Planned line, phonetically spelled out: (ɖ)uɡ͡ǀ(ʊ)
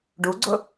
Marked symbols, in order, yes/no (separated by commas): yes, yes